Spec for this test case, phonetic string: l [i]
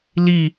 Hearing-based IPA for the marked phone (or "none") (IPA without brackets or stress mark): i